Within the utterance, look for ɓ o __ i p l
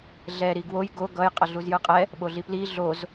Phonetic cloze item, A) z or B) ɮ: B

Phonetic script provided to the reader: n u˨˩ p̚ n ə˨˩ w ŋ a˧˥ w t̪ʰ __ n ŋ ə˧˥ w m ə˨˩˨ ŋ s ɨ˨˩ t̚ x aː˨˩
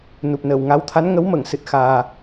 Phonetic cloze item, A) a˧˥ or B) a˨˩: A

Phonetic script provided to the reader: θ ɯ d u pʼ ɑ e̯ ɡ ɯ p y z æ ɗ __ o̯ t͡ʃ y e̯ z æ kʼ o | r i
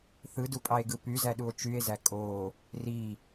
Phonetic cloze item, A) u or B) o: A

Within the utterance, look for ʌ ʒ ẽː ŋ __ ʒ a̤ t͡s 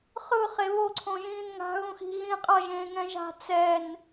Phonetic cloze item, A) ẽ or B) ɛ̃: B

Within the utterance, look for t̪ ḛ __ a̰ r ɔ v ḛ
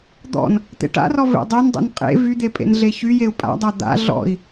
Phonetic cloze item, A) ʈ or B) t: A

